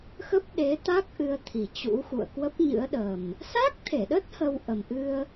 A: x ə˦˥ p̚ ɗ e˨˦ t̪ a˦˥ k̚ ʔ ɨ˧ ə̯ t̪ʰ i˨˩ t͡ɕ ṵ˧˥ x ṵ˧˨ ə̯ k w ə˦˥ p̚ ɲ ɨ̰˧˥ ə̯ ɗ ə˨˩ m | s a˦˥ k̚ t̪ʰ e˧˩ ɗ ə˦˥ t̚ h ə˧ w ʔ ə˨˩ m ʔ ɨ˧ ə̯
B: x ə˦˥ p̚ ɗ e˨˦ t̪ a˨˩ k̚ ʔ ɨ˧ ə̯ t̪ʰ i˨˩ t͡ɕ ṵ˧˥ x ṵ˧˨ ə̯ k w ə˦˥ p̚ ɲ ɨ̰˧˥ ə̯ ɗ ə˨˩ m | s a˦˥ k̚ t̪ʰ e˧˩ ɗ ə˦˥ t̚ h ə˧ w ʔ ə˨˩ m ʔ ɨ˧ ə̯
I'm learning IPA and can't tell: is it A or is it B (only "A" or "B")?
A